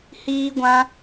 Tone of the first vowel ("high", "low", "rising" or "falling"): high